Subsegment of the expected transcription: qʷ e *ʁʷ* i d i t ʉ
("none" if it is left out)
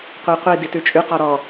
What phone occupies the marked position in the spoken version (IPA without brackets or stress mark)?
qʷ